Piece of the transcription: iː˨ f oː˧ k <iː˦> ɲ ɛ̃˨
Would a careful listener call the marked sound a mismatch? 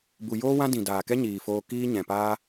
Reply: no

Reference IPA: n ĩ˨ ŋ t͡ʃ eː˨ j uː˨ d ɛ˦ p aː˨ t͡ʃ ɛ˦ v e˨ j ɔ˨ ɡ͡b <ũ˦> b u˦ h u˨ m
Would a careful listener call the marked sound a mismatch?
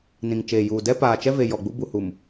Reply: yes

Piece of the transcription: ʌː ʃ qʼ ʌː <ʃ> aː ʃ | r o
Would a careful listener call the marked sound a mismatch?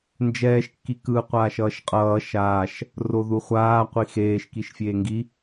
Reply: no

